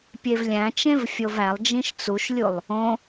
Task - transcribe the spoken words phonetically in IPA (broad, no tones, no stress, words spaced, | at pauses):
pʲevlʲæ̃t͡ʃẽv fʲovælˠd͡ʒĩʃ t͡suʃlʲulˠ | õ